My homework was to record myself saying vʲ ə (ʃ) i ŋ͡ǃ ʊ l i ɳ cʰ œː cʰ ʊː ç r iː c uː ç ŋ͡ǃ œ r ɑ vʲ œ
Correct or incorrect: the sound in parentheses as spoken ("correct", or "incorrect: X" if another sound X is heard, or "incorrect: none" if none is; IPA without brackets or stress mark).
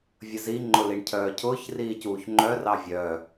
incorrect: z